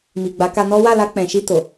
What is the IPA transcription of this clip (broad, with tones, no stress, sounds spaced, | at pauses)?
m i˨ ɡ͡b a˨˦ k a˧ n ɔ˦ w a˦˨ l a˧ k͡p ɛ̃˨ ʃ i˧ t o˨